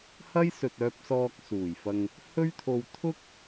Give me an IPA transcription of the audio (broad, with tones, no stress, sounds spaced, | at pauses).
h ɐ˥ j s ɵ˨ t̚ œː˧ p̚ s ɔː˧ k̚ s uː˨˩ j f ɐ˧ ŋ | h ɵ˥ ɥ t̪ʰ o˧ w t̪ʰ ʊ˥ k̚